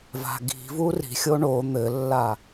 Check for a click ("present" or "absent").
absent